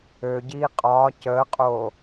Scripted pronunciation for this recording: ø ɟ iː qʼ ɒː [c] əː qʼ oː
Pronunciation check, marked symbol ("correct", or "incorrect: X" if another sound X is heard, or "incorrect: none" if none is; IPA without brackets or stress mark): correct